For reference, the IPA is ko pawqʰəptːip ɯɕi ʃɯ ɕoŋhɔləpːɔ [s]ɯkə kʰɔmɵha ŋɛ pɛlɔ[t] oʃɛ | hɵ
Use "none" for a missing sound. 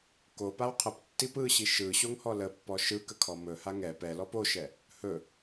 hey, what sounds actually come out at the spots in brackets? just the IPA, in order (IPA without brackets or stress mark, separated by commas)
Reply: ʃ, p